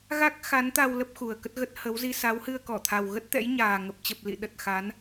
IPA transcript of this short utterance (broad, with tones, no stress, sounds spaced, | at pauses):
ɣ a˦˥ k̚ x a˨˦ n t̪ a˧ w l ə˦˥ p̚ x u˨˩ ə̯ k ə˦˥ t̚ ɣ ə˦˥ t̚ h ə˨˦ w z i˧ s a˨˦ w h ɨ˧ ə̯ k ɔ˧˩ t̪ʰ a˨˩ w ɣ ə˦˥ t̚ t̪ ɛ̰˧˥ j ɲ aː˨˩ ŋ ə˨˩ p̚ t͡ɕ ə˨˩ p̚ l ḭ˧˨ ɗ ə˨˩ t̚ x a˨˦ n